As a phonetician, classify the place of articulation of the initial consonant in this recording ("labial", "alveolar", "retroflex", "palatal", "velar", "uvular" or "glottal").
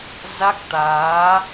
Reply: alveolar